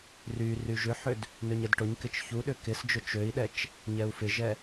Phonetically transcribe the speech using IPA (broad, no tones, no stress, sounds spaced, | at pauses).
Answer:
r y r y ʒ ʏ ħ ʏ d | n ø ɲ ɛ d ʈ ʊ ɲ k ɪ t͡ʃ ç u ɗ ʏ k ɪ s d͡ʒ ʊ t͡ʃ ø i̯ ɗ ɛ t͡ʃ | ɲ ɛ u̯ f ɪ ʒ ɛ